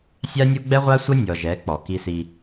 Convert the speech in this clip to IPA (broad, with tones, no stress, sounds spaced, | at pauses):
sʲ a˦ nʲ u˦ ɡ͡b ɛ˦ ʁʷ a˦ sʷ ɤ˦ nʲ ɔ˨ ʒ ɛ˨˦ k͡p ɔ˨ k i˦ s i˦